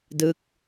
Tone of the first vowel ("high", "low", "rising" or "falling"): falling